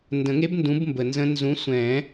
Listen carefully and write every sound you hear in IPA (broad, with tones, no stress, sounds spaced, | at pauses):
n d ə̃˨˩˦ ŋ e˦˥ b n d ũ˨˦ b m b ə˨ n z ə̃˦˥ n z ũ˨˦ sʷ ɛ̃˨˩˦